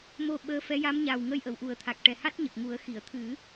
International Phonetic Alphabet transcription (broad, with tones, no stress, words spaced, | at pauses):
mo˧ɓəː˧˥fɛ˧˥ ja˧˥mɲaː˨˩wŋə˧j ʔə˨˩˨wʔu˨˩˦ə̯ t̪ʰa˨˩k̚ʈɛ˨˩ha˦˥t̚ ɲə˨˩k̚ŋu˨˩˦ə̯ xi˨˩˨ə̯t̪ʰɨ˨˩˦